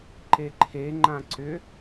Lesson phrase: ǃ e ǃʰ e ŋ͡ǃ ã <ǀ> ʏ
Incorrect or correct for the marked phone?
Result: correct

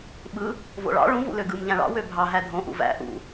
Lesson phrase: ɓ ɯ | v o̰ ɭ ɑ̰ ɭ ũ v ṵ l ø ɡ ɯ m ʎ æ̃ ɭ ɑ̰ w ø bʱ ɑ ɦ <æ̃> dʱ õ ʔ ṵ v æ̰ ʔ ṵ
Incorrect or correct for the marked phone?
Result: incorrect: æ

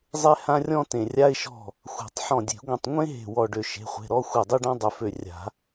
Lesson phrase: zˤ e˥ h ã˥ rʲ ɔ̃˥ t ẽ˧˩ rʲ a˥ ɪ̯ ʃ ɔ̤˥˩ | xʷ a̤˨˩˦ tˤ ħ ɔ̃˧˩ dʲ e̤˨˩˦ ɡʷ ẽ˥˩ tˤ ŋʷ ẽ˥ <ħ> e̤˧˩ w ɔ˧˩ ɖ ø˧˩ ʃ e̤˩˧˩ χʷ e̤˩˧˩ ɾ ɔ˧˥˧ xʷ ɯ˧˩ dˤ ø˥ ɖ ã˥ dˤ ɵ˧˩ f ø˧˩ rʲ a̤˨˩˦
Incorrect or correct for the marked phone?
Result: incorrect: ɦ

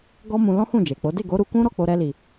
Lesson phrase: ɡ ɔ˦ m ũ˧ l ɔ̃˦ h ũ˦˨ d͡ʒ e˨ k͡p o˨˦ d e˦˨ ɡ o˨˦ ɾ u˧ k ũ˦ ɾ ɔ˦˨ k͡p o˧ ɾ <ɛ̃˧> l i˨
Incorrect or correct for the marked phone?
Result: incorrect: ɛ˧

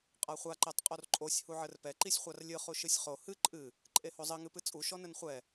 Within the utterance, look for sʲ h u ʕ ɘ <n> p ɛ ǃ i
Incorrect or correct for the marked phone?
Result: incorrect: r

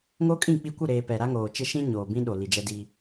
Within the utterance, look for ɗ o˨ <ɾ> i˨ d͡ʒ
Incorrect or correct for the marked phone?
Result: incorrect: l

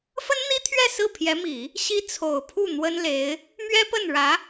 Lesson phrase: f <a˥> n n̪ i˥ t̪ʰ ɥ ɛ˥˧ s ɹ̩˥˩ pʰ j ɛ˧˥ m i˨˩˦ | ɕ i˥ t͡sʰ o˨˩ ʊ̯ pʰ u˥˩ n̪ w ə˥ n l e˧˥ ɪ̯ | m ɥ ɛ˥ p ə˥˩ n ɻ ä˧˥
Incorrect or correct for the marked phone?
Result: incorrect: ə˥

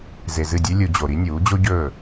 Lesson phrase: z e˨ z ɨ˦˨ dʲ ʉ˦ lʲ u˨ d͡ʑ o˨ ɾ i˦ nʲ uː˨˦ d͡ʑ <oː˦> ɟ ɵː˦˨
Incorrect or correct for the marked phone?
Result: incorrect: o˦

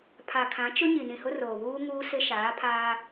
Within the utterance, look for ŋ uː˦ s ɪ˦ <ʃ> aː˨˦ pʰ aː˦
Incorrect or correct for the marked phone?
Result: correct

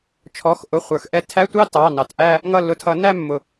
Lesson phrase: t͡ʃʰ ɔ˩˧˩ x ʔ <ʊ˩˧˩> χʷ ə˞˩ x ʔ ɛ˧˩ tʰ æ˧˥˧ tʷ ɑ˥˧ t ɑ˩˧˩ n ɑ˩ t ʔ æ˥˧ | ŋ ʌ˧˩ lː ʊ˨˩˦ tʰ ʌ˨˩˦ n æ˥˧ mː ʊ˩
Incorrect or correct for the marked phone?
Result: correct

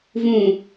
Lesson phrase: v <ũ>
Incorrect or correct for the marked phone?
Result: correct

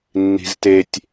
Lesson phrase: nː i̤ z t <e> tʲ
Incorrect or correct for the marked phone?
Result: correct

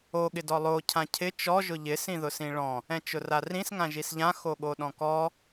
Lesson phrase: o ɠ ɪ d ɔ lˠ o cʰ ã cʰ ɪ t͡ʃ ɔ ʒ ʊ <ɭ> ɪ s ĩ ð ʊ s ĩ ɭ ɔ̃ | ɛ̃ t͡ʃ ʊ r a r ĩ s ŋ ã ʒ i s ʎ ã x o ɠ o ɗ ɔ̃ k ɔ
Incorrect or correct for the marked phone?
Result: incorrect: ʎ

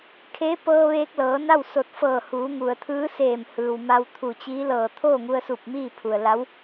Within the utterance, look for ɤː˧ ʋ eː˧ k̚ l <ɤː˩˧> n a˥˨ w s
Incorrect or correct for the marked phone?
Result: correct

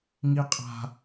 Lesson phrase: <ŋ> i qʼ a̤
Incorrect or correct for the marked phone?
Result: correct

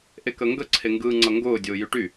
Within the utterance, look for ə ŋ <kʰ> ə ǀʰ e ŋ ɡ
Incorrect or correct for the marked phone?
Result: incorrect: ɡ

